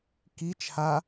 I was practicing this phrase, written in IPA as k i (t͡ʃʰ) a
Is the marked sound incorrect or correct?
correct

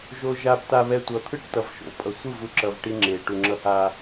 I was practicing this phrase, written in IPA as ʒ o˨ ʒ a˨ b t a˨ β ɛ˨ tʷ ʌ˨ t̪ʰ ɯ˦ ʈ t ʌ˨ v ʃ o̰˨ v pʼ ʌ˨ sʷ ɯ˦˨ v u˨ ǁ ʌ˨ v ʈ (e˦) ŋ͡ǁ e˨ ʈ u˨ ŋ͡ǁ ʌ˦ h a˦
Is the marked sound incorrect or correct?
incorrect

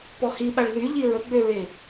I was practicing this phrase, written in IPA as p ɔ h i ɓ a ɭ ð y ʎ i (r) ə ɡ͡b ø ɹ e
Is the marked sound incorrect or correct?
incorrect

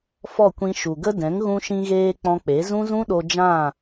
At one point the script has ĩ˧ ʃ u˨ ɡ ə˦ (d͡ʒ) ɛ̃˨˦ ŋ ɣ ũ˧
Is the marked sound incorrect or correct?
incorrect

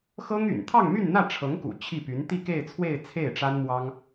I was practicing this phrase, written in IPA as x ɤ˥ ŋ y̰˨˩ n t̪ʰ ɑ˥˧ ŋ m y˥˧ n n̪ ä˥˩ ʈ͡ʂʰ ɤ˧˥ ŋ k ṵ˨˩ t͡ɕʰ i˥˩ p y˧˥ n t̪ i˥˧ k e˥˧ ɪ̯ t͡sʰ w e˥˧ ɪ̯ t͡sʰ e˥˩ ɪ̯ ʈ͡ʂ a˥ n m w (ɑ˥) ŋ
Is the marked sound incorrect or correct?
correct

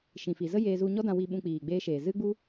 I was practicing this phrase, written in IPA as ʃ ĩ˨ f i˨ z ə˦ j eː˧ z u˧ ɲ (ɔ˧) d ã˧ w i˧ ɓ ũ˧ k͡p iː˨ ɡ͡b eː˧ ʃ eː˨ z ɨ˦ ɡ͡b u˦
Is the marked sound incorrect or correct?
incorrect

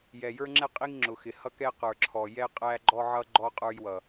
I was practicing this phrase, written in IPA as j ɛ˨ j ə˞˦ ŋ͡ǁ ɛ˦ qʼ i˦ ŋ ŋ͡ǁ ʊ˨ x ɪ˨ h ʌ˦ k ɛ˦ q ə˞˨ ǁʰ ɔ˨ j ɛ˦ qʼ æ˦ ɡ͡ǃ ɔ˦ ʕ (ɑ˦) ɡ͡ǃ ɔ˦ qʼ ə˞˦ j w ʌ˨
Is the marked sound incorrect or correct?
incorrect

